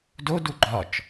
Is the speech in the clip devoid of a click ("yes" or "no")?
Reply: no